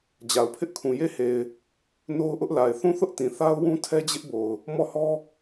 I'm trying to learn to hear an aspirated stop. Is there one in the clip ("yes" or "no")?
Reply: yes